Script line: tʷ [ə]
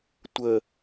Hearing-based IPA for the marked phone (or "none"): ə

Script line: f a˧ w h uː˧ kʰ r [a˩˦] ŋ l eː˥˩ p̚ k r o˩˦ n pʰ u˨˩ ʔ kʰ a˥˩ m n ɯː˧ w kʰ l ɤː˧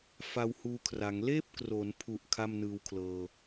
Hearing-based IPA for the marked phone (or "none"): a˩˦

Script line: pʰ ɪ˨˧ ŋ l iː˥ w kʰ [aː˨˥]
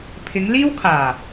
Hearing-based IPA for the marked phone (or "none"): aː˨˩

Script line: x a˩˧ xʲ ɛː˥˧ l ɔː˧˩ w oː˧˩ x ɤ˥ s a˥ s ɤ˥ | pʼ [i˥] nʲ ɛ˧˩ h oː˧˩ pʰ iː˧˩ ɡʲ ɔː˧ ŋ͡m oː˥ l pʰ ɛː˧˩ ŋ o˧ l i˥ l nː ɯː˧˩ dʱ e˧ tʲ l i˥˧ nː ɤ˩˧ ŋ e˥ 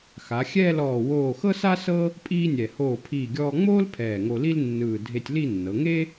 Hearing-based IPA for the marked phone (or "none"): iː˥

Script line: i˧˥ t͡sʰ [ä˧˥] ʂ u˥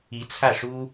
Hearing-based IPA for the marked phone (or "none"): ä˥˩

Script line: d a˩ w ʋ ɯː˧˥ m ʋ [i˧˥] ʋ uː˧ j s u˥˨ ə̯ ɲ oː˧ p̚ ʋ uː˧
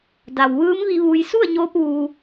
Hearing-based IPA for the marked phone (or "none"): i˧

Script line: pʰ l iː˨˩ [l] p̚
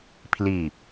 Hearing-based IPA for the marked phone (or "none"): none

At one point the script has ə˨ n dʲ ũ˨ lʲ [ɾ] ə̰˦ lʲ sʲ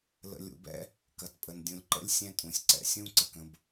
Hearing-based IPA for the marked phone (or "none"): ǃ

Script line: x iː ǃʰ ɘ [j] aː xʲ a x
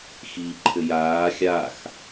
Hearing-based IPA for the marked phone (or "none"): j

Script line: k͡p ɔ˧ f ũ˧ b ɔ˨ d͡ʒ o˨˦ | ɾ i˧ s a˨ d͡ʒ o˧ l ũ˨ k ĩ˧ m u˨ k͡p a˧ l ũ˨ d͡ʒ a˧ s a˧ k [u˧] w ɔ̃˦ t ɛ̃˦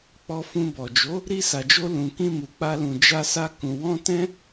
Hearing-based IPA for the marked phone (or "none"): ũ˧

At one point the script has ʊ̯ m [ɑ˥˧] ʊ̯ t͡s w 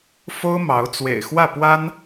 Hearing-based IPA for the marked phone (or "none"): ɑ˧˥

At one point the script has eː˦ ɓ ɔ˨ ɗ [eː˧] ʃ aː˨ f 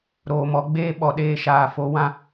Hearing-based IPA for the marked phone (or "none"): eː˧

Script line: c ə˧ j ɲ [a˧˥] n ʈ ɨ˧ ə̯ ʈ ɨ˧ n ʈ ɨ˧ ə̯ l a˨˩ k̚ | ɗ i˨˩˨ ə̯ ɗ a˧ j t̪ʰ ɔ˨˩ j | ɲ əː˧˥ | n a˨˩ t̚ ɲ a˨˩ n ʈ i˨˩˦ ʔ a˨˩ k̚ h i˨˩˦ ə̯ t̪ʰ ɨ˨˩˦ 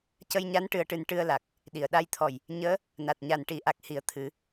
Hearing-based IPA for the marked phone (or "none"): a˧˥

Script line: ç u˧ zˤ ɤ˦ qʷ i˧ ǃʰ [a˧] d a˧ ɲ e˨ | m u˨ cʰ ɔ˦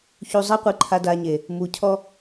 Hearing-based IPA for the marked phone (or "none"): a˧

